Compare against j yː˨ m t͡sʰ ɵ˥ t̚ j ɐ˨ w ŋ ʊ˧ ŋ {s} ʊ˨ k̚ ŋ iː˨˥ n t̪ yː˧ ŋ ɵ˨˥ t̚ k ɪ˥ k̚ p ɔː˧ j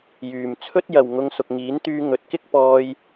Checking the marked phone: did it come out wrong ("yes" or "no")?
no